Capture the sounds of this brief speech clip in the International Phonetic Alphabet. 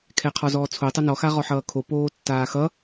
kʰ ɛ qʰ ɔ z ɔː t͡sʰ o tˤ ʌ n ɔ x a ʁ ɔ ħ ʌː kʰ o p oː tː aː x ʌ

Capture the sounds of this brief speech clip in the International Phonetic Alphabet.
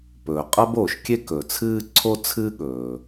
p ɵː˩ qʼ ɐ˦ b oː˩ ʃ kʲ e˥ k ɵ˩ t͡sʰ ɨː˥ ǀʰ o˥ t͡sʰ ɨː˥ ɠ ɵː˩

